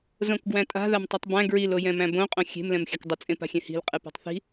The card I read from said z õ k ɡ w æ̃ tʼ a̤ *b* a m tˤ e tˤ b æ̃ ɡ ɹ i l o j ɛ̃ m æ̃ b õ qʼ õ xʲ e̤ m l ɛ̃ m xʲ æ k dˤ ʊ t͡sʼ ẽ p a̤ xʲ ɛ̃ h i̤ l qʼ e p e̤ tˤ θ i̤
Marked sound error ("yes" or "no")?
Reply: yes